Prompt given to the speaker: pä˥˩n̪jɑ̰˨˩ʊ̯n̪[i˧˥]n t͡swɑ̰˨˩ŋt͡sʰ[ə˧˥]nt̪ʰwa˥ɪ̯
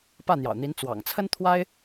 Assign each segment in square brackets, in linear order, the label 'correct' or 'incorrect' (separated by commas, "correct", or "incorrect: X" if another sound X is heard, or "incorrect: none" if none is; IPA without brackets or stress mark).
correct, incorrect: ə˥